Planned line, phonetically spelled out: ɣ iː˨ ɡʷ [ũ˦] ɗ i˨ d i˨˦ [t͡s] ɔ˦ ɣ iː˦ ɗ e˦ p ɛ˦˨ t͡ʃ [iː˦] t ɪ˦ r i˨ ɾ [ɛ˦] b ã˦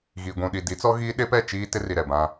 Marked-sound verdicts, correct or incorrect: incorrect, correct, correct, incorrect

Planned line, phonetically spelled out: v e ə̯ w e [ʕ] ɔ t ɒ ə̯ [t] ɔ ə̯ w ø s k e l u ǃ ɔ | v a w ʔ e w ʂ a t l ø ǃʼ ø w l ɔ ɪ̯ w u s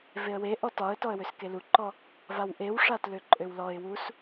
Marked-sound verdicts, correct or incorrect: incorrect, correct

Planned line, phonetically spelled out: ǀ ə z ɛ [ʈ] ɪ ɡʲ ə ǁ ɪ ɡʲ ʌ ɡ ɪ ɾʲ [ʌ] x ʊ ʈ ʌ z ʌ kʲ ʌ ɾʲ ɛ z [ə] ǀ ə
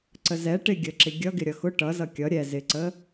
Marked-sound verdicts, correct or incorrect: correct, correct, incorrect

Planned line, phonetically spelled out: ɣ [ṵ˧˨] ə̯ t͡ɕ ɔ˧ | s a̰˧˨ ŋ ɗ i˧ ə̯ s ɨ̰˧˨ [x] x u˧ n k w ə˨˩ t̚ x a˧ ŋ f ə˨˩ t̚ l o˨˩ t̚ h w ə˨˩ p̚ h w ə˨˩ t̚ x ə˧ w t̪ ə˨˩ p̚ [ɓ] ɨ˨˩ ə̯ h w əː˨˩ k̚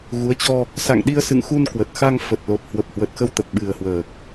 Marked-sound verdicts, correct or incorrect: incorrect, incorrect, correct

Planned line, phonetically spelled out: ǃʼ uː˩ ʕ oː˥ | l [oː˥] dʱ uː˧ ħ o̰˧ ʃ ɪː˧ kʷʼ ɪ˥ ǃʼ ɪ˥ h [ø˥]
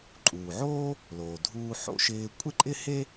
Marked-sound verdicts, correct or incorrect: incorrect, incorrect

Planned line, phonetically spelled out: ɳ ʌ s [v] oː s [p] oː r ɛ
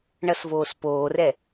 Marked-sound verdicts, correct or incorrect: correct, correct

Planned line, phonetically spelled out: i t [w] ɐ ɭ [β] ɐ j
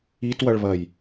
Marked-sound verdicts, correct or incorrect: correct, correct

